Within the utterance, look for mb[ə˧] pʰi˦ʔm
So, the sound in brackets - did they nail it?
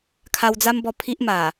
no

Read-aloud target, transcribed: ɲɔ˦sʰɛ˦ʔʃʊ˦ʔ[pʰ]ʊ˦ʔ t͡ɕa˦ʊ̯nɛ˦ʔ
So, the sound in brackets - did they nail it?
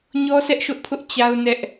yes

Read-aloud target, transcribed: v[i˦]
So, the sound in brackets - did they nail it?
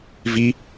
yes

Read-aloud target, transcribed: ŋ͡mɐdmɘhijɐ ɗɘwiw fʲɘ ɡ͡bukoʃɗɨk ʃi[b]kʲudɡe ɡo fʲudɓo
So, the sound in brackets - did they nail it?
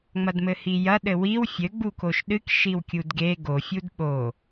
no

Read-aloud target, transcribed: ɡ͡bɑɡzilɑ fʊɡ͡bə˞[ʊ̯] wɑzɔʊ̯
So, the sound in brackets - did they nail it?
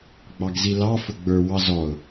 no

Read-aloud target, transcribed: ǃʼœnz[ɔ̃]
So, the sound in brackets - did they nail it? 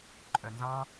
no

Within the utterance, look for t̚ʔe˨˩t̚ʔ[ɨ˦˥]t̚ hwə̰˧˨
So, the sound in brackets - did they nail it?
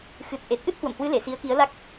yes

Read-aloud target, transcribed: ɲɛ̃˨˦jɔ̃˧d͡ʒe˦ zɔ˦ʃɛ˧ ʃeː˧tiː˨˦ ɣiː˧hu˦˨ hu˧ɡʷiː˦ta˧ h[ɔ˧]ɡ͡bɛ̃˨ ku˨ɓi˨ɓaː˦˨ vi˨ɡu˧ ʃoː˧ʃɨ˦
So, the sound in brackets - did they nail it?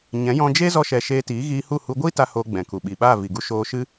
no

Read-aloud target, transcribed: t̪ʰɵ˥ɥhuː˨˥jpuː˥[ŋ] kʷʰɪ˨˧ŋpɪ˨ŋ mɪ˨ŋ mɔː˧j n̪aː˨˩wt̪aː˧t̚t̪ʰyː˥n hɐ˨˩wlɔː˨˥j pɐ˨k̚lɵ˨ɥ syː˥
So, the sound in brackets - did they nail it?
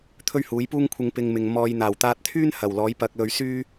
yes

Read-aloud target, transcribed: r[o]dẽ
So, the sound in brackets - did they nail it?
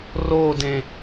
yes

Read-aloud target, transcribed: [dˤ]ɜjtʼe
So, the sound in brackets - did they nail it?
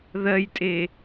no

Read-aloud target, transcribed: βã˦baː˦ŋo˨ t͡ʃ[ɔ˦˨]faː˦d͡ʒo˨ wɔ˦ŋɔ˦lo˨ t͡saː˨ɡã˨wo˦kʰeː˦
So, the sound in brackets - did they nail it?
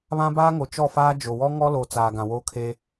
yes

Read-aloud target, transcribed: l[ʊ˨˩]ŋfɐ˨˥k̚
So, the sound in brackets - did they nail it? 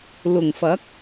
yes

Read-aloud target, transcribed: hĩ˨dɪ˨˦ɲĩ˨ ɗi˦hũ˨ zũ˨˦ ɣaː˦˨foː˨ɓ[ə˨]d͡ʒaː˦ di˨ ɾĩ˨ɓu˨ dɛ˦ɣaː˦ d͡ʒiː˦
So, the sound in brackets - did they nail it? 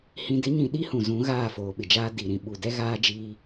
no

